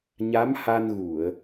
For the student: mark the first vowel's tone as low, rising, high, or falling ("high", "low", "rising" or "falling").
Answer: rising